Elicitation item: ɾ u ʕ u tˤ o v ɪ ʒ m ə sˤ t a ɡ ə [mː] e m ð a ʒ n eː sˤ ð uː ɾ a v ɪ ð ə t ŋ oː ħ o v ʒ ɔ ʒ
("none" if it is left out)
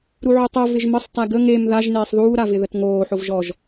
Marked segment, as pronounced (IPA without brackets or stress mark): ŋ